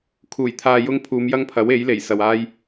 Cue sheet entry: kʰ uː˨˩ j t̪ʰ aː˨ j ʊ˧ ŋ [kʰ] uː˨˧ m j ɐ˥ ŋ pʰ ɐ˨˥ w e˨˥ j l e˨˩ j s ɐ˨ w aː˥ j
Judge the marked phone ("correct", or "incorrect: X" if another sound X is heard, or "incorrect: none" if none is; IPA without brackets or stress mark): incorrect: pʰ